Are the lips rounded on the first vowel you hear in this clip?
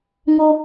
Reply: yes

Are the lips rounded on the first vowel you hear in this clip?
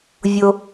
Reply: yes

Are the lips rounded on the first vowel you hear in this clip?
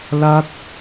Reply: no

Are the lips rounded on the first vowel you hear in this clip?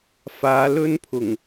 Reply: no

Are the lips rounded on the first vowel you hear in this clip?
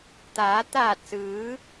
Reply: no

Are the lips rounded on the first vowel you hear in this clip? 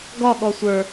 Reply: yes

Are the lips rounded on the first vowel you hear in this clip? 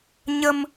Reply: no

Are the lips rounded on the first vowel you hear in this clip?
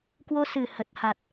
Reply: yes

